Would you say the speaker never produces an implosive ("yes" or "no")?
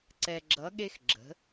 no